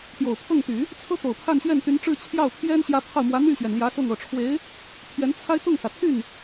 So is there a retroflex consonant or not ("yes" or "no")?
yes